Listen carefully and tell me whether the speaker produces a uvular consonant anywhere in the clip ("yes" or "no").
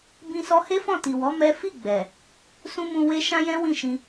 no